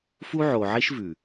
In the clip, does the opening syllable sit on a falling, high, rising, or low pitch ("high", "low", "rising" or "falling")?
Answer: high